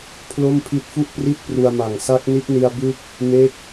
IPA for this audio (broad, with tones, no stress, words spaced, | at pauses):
pʰlo˥˩mpʰi˦˥t̚fu˥˩ʔpri˥˩t̚ pru˧a̯ma˨˩ŋ sa˦˥k̚ni˦˥t̚ni˧a̯ bɯ˦˥k̚ | me˦˥k̚